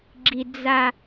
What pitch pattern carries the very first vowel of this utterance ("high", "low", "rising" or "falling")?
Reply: low